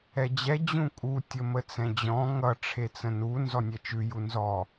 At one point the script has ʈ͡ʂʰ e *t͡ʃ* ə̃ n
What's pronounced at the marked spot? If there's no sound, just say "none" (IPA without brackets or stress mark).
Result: t͡s